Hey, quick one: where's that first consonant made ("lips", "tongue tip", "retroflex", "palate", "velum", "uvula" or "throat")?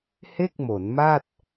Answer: throat